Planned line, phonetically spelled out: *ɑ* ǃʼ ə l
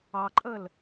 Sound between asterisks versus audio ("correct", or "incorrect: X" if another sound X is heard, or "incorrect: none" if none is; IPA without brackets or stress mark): correct